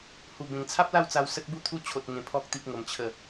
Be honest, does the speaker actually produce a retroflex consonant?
no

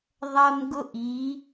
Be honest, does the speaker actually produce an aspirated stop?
no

